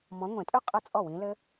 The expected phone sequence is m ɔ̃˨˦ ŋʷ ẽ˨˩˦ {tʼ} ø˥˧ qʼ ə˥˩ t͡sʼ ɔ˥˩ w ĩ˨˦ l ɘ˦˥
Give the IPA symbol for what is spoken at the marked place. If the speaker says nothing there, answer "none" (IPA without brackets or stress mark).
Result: tʼ